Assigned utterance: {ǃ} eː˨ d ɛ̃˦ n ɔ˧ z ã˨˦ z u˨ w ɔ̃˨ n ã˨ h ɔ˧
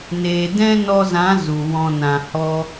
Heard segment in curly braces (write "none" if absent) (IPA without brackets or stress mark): n